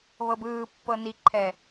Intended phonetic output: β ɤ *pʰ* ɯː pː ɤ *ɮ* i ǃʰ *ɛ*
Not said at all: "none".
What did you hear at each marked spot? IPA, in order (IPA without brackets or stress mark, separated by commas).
b, n, ɛ